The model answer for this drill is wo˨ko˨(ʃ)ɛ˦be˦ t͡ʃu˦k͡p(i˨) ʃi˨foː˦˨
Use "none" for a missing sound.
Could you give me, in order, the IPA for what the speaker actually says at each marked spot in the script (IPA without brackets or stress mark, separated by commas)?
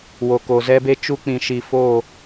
z, ĩ˨